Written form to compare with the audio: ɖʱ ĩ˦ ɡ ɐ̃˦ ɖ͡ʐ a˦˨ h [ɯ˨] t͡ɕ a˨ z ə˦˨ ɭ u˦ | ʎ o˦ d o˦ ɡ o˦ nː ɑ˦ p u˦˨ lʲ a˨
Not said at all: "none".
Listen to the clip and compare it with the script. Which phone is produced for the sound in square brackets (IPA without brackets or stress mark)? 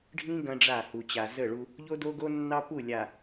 u˨